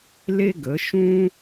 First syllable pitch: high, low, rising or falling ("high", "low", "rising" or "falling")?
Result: high